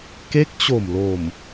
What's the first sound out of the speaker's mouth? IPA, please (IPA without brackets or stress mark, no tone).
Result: k